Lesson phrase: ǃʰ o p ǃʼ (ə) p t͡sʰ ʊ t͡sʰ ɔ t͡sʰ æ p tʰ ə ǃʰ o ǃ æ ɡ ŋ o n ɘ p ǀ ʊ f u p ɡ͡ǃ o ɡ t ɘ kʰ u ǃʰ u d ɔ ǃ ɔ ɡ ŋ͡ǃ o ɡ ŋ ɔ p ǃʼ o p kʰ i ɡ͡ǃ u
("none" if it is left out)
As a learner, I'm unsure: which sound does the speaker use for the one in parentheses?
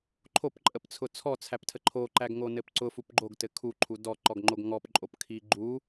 ə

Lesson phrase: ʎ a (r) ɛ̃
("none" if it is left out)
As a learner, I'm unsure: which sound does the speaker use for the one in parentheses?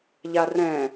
r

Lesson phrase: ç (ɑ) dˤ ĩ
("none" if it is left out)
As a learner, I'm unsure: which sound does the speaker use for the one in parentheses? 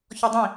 ɔ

